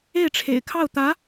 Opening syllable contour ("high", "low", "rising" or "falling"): falling